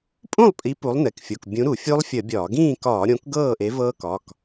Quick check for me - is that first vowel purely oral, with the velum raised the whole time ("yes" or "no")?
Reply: no